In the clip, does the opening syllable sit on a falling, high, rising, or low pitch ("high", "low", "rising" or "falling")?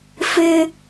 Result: high